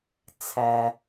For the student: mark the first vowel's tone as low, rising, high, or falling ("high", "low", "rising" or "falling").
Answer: low